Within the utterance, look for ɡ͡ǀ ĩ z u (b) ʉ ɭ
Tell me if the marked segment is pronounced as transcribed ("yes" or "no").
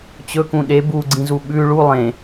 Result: no